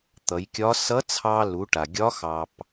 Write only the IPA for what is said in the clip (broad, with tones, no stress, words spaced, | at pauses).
t̪ʌ˩˧jkʲɒ˧˥ sʌ˧˥ t͡sʰɑ˧lu˩˧ʈa˩ ɡʲɒ˧˥xɑ˩p